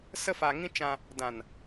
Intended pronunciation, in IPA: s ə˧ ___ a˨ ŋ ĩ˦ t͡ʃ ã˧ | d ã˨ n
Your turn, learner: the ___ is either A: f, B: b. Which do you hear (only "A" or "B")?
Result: A